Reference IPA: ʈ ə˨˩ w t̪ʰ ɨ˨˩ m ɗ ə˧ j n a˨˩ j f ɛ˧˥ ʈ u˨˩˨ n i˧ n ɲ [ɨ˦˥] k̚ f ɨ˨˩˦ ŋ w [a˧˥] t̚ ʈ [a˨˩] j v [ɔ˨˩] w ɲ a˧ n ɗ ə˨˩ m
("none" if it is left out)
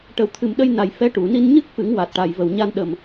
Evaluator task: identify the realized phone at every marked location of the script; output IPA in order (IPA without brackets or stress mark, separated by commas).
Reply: ɨ˦˥, a˨˩, a˨˩, ə˨˩